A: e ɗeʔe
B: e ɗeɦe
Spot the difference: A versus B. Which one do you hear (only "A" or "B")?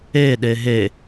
B